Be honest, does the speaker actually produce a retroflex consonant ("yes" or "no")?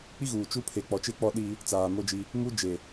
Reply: no